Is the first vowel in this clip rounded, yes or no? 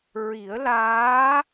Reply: no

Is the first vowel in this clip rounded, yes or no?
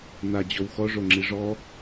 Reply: no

